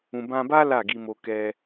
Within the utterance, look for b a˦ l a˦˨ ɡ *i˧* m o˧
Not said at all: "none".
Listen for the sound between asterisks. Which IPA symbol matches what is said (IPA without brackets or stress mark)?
i˧